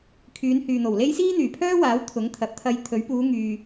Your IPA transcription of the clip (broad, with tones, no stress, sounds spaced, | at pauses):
kʰ yː˨˧ n h yː˨ n̪ o˨˩ w l e˥ j s iː˥ n̪ yː˨˩ pʰ œː˥ w aː˨˥ w t̪ʰ ʊ˨˥ ŋ t̪ʰ ɐ˨˥ p̚ t̪ʰ ɐ˧ j t̪ʰ ɵ˨˥ ɥ p uː˨˧ ŋ yː˨